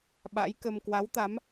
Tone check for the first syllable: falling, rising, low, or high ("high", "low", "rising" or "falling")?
rising